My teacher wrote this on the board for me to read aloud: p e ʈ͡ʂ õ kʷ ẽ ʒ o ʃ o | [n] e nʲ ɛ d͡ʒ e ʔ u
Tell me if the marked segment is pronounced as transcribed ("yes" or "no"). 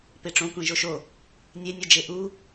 no